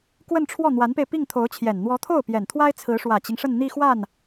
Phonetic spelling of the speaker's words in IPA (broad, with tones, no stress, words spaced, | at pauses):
kwə˥˧nʈ͡ʂʰwɔ˥˩ n̪wa˧˥npe˧ɪ̯ pi˥˩ŋ t̪ʰo˧˥ʊ̯t͡ɕʰjɛ˨˩n n̪wɔ˧˥t̪ʰo˥˩ʊ̯ pjɛ˨˩nt̪ʰwa˥ɪ̯ t͡sʰɹ̩˧˥ʂwä˨˩t͡ɕi˦ŋ ʂə˥˧nn̪i˥˧xwa˥˩n